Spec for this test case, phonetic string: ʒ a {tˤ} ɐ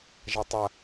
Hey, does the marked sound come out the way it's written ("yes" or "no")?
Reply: yes